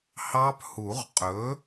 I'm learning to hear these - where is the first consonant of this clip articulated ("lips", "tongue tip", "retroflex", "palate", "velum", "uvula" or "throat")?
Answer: throat